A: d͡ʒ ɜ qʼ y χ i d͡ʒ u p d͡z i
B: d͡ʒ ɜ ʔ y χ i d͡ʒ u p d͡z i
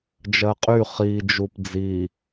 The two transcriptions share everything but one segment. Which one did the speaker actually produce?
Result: A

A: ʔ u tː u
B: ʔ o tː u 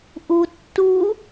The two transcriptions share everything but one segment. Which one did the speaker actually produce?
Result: A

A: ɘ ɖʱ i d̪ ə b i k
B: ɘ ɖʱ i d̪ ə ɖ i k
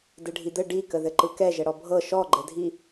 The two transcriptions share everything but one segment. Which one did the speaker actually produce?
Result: B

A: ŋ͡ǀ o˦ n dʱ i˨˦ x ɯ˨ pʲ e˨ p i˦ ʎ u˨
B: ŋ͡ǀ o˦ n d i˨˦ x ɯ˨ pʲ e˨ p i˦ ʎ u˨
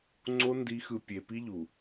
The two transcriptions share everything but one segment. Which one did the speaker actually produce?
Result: B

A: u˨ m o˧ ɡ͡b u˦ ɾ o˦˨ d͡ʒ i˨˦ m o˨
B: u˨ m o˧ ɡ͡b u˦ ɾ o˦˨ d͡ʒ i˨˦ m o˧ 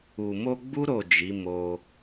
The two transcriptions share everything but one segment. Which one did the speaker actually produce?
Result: B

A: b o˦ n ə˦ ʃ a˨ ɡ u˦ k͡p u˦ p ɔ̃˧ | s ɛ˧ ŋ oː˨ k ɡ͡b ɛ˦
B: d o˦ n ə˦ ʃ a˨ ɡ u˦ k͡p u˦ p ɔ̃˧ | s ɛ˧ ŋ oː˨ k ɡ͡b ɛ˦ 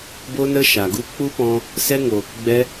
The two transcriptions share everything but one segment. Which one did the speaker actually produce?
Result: A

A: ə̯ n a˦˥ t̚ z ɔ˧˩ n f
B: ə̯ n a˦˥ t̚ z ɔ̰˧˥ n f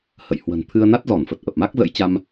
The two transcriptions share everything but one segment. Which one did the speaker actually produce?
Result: A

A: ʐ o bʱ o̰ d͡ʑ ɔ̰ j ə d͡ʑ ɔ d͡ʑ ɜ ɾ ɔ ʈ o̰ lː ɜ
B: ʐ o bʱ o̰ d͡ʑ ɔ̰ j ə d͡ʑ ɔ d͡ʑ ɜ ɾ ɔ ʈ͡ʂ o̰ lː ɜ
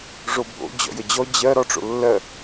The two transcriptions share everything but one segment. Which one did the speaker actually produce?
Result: B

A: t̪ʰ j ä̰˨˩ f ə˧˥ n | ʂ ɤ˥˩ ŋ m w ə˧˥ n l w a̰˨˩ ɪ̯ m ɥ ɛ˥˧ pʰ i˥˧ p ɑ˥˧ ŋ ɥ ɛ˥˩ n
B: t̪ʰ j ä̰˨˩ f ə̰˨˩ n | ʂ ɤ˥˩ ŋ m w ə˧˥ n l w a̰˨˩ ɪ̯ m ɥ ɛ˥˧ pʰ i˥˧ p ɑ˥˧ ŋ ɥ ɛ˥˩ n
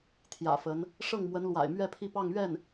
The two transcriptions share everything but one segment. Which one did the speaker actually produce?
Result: A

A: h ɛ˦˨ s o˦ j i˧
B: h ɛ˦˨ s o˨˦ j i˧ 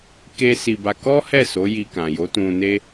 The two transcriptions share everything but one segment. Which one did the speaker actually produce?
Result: B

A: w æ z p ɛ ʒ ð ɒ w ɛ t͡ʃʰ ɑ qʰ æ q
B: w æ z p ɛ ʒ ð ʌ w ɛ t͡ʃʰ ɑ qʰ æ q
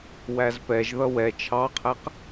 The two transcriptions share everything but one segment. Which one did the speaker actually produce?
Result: B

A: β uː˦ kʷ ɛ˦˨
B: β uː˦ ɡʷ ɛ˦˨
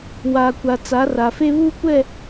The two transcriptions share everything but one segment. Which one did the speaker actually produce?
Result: A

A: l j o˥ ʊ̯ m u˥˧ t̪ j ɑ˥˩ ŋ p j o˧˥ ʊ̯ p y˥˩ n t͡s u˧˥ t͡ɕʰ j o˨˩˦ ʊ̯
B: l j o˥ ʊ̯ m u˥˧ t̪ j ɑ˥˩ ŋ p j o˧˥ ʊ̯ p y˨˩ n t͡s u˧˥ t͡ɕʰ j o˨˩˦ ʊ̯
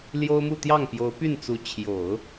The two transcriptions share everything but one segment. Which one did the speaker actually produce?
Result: A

